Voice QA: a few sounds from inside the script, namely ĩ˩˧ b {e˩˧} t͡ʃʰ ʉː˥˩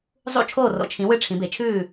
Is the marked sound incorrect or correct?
correct